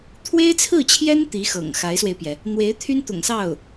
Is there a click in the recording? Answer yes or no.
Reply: no